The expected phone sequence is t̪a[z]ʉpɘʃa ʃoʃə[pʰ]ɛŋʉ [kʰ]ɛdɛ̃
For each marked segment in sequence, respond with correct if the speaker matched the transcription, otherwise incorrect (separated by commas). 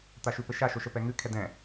incorrect, incorrect, correct